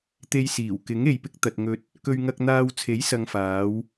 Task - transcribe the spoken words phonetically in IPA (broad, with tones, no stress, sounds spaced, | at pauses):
t̪ e˧ j s iː˨˩ w k ɪ˨˥ ŋ e˨ j p ɪ˧ k̚ t̪ ɐ˨ t̚ ŋ ɵ˧ t̚ | k ɵ˧ ɥ ŋ ɐ˧ k̚ n̪ aː˧ w t͡sʰ e˨˥ j s ɐ˨ ŋ f aː˨˧ w